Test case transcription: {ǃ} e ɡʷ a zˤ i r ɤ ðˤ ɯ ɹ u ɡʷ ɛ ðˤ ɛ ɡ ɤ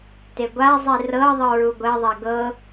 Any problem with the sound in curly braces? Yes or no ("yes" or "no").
yes